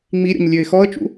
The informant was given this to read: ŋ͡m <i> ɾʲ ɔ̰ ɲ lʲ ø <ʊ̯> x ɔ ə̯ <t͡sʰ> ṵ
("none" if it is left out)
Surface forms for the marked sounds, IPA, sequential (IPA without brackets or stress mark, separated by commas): i, ɪ̯, t͡ʃ